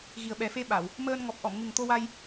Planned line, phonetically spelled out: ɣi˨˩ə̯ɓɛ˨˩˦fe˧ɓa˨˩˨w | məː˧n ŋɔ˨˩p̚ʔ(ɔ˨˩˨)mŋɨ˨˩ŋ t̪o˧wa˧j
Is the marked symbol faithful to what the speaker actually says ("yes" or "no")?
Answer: yes